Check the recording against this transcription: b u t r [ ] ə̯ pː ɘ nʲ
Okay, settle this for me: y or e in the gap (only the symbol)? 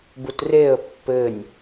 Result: e